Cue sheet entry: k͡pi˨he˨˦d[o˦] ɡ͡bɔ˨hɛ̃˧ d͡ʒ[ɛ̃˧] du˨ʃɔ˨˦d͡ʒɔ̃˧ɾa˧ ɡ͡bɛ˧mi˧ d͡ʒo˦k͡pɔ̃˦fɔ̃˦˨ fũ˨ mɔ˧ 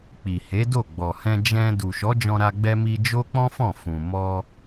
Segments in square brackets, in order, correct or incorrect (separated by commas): incorrect, correct